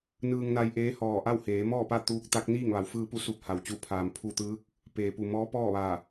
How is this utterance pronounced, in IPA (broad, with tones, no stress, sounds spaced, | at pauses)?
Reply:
n ɯː˧ ŋ n a˧ j ʔ eː˧˥ h ɔː˧˩ ʔ a˥˨ w h eː˩˧ m ɔː˥˨ p a˥˨ t̪ uː˧˥ k̚ t̪ a˧˥ k̚ n iː˥˨ ŋ ʋ a˩ w f ɯː˧ p u˥˨ s u˧˥ p̚ h a˩ w t͡ɕ u˧˩ pʰ aː˩ m pʰ u˧˩ t̪ ɯː˧˥ k̚ | p eː˩ p u˩ m ɔː˧˥ p ɔː˥˨ ʋ a˧˩